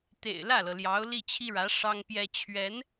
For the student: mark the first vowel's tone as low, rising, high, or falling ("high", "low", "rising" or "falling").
low